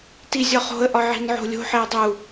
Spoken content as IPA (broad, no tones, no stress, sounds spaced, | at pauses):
t i zʲ ɒ χ o̤ ə̯ ʔ ɒ ʕ i̤ n ʕ o̤ lʲ o̤ ħ e ə̯ dˤ u